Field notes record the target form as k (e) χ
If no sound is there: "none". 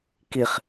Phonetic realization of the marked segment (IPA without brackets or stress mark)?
i